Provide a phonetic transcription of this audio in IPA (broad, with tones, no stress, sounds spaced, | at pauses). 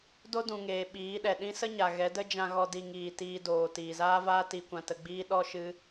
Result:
d o˦ d ũ˨ ŋ eː˨ ɓ iː˨˦ ɗ ɛ˨ ɗ ĩ˦ s ə˦ ɲ a˨ ɣ ɛ˨˦ d ə˦ d͡ʒ ã˧ ɣ ɔ˧ d i˧ ŋ iː˨ t iː˧ d oː˨ t iː˨ z aː˦ v aː˦ t i˧ kʷ ã˧ t ə˧ ɡ͡b iː˦ ɗ ɔ˦ ʃ ɨ˦